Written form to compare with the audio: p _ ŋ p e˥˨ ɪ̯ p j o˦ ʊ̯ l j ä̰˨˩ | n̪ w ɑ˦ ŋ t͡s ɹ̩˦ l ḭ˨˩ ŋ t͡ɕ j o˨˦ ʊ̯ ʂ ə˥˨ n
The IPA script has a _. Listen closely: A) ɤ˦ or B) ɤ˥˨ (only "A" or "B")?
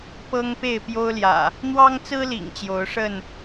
A